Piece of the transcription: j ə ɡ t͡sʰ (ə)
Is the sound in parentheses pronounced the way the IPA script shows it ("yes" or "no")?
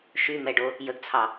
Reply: no